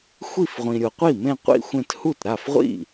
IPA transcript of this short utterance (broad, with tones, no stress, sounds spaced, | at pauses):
xʷ i˥˩ f ʁʷ ĩ˨ ɾʲ o˨ qʷ i˥˩ m ẽ˥˧ qʷ ḭ˥˧ xʷ ẽ˥˧ t h u˥˩ t ɾ a˥˩ f ʁʷ ḭ˥˩